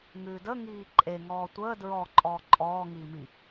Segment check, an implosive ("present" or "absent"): absent